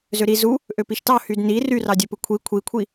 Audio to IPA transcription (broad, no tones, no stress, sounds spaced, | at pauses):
z ø ɾ i z u | ʔ ø p i ʃ t ɑ h y d n i r y r ɑ dʲ ø p ɯ kʷʰ i kʷʰ i kʷʰ i